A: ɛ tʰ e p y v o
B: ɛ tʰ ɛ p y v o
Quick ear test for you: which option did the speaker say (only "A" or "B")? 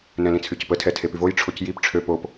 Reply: A